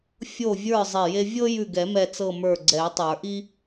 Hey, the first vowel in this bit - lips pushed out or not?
yes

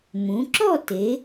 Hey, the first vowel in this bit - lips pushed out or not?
yes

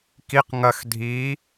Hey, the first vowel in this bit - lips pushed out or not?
no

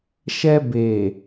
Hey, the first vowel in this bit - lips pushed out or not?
no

